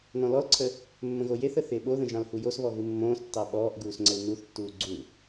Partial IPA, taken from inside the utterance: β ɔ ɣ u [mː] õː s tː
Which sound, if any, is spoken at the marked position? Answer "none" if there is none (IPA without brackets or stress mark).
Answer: mː